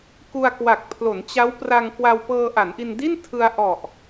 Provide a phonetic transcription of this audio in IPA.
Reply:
k u˧ a̯ k w a˨˩ k̚ pʰ l o˩˦ n t͡ɕ a˦˥ w p r a˧ ŋ k w a˧ w p ɤː˧ ʔ a˩˦ n ʔ i˧ n d i˥˩ n tʰ ɯ˧ a̯ ʔ ɔ˨˩ ʔ

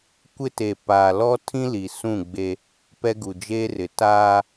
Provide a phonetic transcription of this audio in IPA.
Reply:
kʷ ɪ˦ t e˨ p aː˨ l ɔ˦ tʰ ĩ˦ l i˨ s ũ˦˨ ɡ͡b e˦ | p ɛ˦ ɡ u˨ d͡ʒ eː˦ r ɪ˨ t aː˦

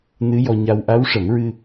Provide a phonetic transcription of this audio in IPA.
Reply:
n ɨ˧˥ j ɔ˧ ɲ a˧ w ʔ a˧˥ w ʂ ə˨˩˦ m ɹ ɨ˧

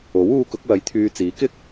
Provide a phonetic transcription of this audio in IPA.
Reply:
o˨˥ w uː˧ k ʊ˨˥ k̚ w ɐ˨˥ j t̪ʰ yː˧ t͡s iː˨˥ k ɪ˥ k̚

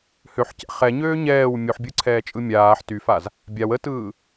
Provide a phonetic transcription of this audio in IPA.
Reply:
h ø ħ c ɛ̰ χ ɛ ɲ øː ɲ ɛː w mʲ u ħ bʲ ɯ ǀʰ ɛː t͡ʃʼ ɯ mʲ aː ħ t y f a z | bʲ a w ə t ɯː

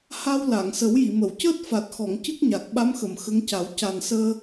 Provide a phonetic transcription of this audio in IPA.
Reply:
h a˧ w l a˨˩˨ ŋ s ə˨˩˦ w j i˨˩˨ m ə˨˩˨ w c əː˦˥ t̚ f a˨˩ t̚ x ɔ˨˩˨ ŋ c ɨ˦˥ k̚ ɲ a˨˩ k̚ ɓ a˧˥ m x ə˨˩˨ m x ə˧˥ ŋ c a˨˩˦ w c a˨˩ n s əː˧

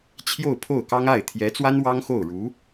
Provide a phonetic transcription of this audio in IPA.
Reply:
t͡ɕʰ j o˥˧ ʊ̯ pʰ o˥˩ ʊ̯ k ɑ˥ ŋ a˥˩ ɪ̯ t̪ʰ j ɛ˧˥ t͡s w a˥ n w ɑ˥ ŋ x o˥˩ ʊ̯ ɻ u˧˥

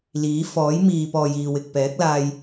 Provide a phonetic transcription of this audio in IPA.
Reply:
l iː˨˥ f ɔː˨˥ j m iː˨ p ɔː˨ j iː˨ w ɪ˨ k̚ p ɛː˨˥ k̚ l aː˧ j

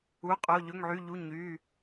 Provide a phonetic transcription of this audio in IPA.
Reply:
u˩˧˩ qʼ o˩˧˩ ʎ ɵ˩˧˩ ŋ ʕ y˩˧˩ ʎ u˩˧˩ ɲ y˩˧˩

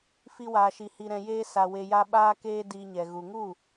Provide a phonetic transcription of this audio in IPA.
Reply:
f i˦ w aː˧ ʃ i˧ h i˧ ɾ ɛ̃˧ j eː˦ s a˧ w e˧ j a˦ ɓ aː˦ k eː˦ d iː˧ ɲ ɛ˨ ɣ u˨ ŋ u˦˨

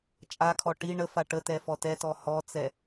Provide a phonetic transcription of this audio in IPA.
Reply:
t͡ʃʼ a kʰ ɔ ʈ i ɳ ə f a ʈ ə t ɛ f ɔ t ɛ t ɔ h ɔ t͡s ɛ

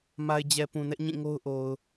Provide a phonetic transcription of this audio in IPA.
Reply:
m a˨ ɪ̯ d͡ʑ ɛ˨ p ũ˨ n ɛ˦ ʔ ɲ ĩ˦˨ ŋ o˦ ʊ̯ ʔ o˨ ʊ̯

